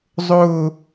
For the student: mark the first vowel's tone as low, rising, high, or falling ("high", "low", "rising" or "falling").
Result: falling